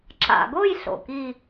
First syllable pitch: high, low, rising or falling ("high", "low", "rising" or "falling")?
low